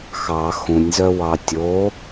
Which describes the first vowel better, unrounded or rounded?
unrounded